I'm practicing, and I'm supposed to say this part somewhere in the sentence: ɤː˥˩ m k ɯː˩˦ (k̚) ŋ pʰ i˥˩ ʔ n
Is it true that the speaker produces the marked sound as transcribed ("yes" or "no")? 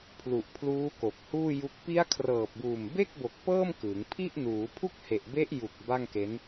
no